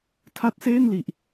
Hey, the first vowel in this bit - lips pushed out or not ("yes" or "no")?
no